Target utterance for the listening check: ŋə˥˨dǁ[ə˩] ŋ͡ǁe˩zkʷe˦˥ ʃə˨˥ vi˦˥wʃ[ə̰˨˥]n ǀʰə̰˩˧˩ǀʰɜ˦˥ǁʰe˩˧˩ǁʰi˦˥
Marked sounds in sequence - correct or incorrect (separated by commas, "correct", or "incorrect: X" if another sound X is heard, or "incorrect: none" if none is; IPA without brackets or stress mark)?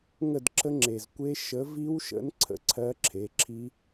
incorrect: ə˦˥, correct